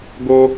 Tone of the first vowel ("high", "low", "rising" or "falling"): high